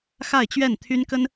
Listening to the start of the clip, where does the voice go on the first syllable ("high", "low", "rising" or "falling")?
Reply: falling